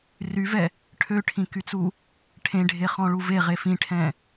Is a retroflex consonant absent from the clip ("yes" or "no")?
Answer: no